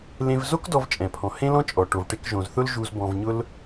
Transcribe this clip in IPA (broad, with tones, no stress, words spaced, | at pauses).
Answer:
lẽ˧vzo˥kdɔ˧v t͡ʃʼɛ̃˩pʰɔ̃˩ hẽ˥lɔ̃˥t͡ʃʼɔ˩ ʈo˩vʈe˧kʒõ˩zθʊ˥l ʒu˧z bɔ̃˧vɲʊ˥l